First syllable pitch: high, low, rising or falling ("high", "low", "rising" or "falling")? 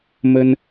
high